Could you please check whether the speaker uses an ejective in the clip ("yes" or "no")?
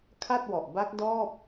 no